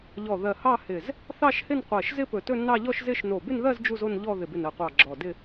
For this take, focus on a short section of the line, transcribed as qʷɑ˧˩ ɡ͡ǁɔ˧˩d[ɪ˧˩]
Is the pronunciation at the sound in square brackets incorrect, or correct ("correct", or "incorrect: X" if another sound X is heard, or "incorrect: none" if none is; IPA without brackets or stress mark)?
incorrect: ɪ˥˧